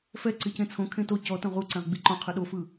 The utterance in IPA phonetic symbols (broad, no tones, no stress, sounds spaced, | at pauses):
f ɛ ǀ i c ẽ t͡sʰ õ kʰ ẽ t o c ɔ t õ ʁ u ǀ ɛ̃ ʁ ɡ͡b i ǃ õ qʰ ɯ ɗ o f ɯ